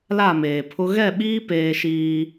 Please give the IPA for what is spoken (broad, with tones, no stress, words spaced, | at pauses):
la˦˨meː˨pʰʊ˦ ɣɛ˦˨ɓiː˦ peː˦ ʃiː˦